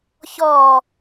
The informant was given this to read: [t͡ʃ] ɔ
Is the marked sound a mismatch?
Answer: yes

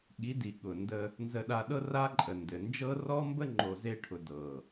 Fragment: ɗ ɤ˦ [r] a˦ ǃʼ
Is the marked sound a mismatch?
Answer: no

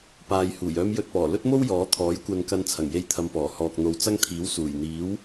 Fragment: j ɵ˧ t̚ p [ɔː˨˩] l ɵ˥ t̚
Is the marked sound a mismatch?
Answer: no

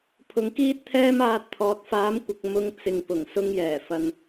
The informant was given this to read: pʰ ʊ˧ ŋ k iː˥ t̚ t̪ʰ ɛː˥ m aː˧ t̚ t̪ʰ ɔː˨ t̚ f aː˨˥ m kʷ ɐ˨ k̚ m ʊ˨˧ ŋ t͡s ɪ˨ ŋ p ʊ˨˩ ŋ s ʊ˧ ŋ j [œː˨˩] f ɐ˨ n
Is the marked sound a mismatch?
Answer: yes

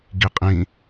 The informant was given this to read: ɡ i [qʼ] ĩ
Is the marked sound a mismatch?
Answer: no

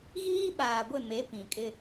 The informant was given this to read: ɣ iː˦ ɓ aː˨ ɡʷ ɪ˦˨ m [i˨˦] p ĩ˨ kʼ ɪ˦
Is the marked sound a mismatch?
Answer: yes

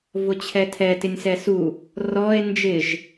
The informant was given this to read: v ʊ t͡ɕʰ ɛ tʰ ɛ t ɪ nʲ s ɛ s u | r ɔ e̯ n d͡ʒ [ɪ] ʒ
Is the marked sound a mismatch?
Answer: no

